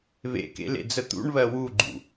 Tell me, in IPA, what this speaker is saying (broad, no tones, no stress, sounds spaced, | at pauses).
β ḛ k ḛ l ḛ d͡z ə t̪ ṵ ɳ β ɜ w u ɡ͡ǃ ṵ